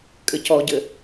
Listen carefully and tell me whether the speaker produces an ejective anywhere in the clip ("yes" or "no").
yes